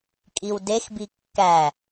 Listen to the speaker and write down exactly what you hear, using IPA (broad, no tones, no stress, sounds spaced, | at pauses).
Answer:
kʼ i w d e x b i kː æ